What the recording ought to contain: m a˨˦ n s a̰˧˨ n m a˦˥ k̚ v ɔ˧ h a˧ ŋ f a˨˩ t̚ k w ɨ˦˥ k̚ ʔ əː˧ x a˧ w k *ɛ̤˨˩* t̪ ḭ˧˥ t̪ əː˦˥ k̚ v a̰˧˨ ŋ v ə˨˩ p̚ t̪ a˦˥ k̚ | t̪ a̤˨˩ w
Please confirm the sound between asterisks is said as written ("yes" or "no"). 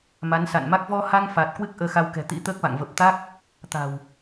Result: yes